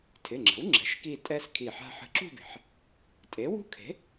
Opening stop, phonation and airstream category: aspirated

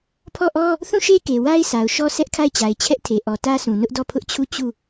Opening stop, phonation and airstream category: aspirated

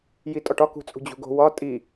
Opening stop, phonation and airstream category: ejective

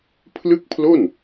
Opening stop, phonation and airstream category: aspirated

